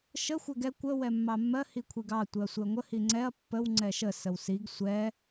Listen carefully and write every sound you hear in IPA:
ʃ ə xʷ ɛ ɡ ɛ kʷ ə w ɛ mː ɑ mː ɜ h i kʷʰ i ɡ ɑ tʷ ɪ ɐ̯ sʷ ɪ ɐ̯ ŋʷ ə h i ŋ͡ǀ ɛ ɐ̯ pː ə w ŋ͡ǀ ɛ ʃ ə s ə w s i ɡ sʷ ɛ

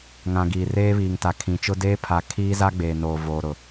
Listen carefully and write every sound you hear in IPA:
ŋ ã˨ ɡ iː˨ r eː˦ β iː˨ ŋ t a˨ kʰ ĩ˨ t͡ʃ ʊ˦ d eː˦ pʰ a˨ kʰ iː˦ z a˦ ɡ͡b eː˨ n oː˨ v oː˨ ɾ ʊ˨

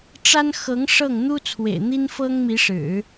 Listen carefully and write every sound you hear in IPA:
ʈ͡ʂ a˥ n x ɤ˧˥ ŋ ʂ ɤ˥˩ ŋ n̪ u˥ t͡sʰ w ḛ˨˩ ɪ̯ n̪ i˥ n f ɤ˥ ŋ m i˧˥ ʂ ɻ̩˨˩˦

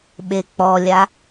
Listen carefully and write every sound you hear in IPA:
ɓ e k͡p ɔ lʲ a

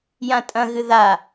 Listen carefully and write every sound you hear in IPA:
j ã tʼ ɐ̃ ɣ ɨ ð a

